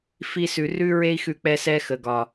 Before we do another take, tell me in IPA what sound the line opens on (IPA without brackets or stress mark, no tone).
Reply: f